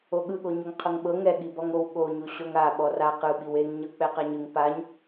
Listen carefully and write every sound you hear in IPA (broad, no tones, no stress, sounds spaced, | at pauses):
o ɠ ɯ ɠ o ɲ o ŋ qʰ ɤ ŋ ɓ ɤ ŋ ɛ ɠ i b ɔ ŋ o w ɠ o ɲ u ɕ o ŋ a ɓ ɔ r a q ɯ ɓ i w e ŋ ɲ ɤ k͡p ɛ q a ɲ ɯ ŋ p a ɲ